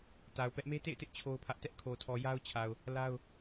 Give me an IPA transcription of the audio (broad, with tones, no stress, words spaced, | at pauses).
ta˨ʊ̯pɛ˦ʔ me˦tḛ˦˨ɪ̯tɪ˦ʔ t͡ɕʰo˦ʊ̯pʰä˦ʔ tɛ˦ʔkʰo˨tʰɔ˨ ja˦ʊ̯t͡ɕʰa˨ʊ̯ | la˦ʊ̯